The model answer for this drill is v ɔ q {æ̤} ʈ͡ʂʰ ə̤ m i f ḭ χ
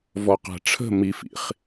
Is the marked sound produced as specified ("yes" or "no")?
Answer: yes